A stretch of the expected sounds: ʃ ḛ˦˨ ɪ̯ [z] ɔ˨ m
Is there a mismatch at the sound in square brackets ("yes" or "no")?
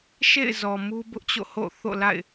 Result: no